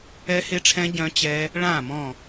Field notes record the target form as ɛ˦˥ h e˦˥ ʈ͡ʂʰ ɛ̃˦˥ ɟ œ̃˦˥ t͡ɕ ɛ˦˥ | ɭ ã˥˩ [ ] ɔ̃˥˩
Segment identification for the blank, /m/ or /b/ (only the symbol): m